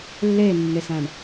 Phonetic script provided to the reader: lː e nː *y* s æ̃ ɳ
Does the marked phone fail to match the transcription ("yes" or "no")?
yes